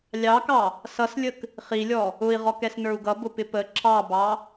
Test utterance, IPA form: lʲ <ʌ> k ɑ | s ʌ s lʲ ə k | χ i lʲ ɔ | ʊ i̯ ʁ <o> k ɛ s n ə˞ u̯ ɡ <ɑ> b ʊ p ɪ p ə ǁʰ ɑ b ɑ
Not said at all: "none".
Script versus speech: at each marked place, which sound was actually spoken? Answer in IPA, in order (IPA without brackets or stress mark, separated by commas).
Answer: ɑ, ɔ, ʌ